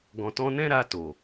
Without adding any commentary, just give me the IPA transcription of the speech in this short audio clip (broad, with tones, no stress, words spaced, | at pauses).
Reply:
ɡɔ̃˨tɔ̃˧nɛ̃˦ ɾa˧to˨